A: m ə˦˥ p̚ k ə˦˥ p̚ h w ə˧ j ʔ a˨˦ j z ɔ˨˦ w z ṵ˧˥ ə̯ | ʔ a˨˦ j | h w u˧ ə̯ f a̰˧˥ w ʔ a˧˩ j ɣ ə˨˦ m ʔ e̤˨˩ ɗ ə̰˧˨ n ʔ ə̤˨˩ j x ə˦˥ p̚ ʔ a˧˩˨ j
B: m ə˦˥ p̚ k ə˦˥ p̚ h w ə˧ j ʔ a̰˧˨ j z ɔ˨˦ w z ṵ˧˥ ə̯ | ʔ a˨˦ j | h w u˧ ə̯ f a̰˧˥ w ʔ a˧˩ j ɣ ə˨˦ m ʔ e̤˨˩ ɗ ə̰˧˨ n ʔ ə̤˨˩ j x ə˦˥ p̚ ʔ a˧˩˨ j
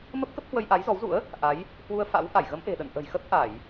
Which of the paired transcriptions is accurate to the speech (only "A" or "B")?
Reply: A